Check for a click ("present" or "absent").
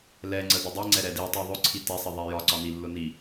present